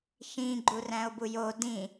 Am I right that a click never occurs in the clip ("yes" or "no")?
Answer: no